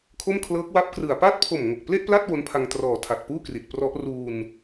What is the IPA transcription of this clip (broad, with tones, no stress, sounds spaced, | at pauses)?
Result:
kʰ o˥˩ m kʰ l ɤː˦˥ k̚ w a˦˥ p̚ k r ɯ˨˩ a̯ p a˦˥ t̚ pʰ o˨˩ m ŋ o˨˩ k̚ p l e˥˩ ʔ p l a˥˩ t̚ w o˦˥ n pʰ a˧ ŋ t r ɔː˩˦ tʰ a˨˩ t̚ p uː˥˩ k r i˨˩ t̚ p r ɔ˦˥ ʔ r uː˧ n